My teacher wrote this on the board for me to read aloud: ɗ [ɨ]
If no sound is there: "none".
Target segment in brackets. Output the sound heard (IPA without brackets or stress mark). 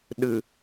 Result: ɨ